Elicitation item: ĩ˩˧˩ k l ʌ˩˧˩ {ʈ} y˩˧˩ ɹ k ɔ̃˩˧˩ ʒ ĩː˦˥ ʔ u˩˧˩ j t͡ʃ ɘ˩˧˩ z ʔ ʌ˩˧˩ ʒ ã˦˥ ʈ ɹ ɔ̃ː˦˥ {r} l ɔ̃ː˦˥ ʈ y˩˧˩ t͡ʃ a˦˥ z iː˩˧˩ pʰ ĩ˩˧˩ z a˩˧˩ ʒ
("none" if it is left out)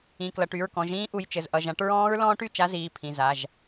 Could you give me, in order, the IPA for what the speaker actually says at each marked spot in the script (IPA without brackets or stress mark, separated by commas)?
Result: ʈ, ɹ